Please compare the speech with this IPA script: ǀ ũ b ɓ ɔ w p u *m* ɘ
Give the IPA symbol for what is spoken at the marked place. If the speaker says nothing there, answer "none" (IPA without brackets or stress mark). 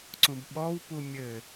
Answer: mʲ